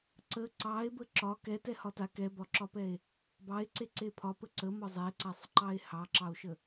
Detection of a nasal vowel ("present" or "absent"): absent